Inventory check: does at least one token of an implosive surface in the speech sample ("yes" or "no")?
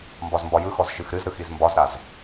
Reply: no